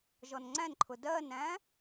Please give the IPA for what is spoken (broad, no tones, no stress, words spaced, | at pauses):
ʒɔnŋ͡ǀæ̃nǃʰʊ dɜnæ̃